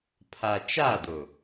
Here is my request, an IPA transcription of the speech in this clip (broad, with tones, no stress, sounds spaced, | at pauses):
pʰ a˨ t͡ʃ a˦˨ d ʊ˨